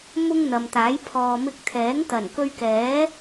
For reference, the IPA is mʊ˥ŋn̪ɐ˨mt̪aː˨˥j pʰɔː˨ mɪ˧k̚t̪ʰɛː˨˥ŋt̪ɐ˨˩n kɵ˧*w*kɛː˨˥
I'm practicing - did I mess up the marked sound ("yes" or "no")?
yes